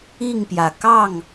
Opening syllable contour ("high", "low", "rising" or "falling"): falling